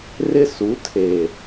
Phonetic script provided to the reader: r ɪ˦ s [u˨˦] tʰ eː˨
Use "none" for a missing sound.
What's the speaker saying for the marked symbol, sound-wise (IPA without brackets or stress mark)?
u˨˦